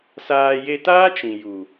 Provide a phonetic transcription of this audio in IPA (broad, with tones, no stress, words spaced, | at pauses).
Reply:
saː˧ je˧taː˦ t͡ʃĩ˨ju˨